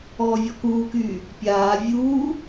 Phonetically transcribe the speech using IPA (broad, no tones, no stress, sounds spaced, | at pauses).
ɔː vʲ ɔ k uː k yː | pʲ aː vʲ uː